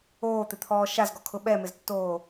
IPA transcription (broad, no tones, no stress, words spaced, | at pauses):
oːt̪ɪt̪ʰɔː ʃazɡɔkʰʊ ɓɛmɪztːoː